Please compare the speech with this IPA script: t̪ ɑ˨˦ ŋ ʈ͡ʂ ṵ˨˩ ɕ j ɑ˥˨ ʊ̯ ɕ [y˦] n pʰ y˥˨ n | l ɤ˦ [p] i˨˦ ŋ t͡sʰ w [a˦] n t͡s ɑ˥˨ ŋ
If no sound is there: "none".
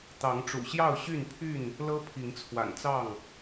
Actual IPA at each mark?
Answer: y˥˨, pʰ, a̰˨˩

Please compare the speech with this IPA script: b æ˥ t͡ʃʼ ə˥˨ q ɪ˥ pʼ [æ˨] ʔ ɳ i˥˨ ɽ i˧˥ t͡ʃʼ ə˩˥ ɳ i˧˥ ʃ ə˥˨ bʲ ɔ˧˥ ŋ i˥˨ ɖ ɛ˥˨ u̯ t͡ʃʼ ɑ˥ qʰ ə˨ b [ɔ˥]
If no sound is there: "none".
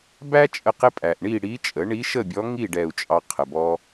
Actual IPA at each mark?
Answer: æ˨, ɔ˥

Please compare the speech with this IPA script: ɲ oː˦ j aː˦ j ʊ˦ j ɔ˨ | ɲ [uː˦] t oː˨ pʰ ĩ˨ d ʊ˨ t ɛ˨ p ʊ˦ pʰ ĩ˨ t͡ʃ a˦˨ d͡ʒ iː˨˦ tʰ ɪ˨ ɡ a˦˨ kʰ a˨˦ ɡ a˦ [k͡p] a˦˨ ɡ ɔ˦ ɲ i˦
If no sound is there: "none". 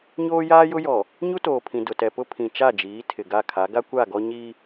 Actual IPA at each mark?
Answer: u˦, kʷ

